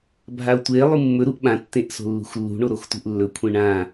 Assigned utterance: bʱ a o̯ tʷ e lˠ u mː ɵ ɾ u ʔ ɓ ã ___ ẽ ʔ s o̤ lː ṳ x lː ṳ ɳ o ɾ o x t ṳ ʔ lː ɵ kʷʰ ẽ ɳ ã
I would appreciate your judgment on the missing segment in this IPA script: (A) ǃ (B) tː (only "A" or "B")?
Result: B